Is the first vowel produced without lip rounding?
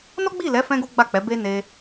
no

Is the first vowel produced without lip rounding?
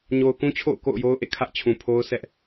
no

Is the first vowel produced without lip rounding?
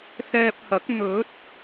yes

